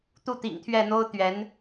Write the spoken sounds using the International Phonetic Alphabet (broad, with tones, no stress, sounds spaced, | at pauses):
t̪ u˥˩ t̪ ḭ˨˩ ŋ t̪ʰ ɥ ɛ˥˩ n̪ o˥ ʊ̯ t̪ ɥ ɛ˧˥ n